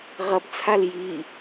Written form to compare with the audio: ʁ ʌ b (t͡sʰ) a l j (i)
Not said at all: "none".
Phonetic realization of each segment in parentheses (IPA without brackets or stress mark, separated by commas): t͡sʰ, i